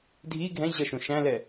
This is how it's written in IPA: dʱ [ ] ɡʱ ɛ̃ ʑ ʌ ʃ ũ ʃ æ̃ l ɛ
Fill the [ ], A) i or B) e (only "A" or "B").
A